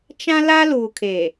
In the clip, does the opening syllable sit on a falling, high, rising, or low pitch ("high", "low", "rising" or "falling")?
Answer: high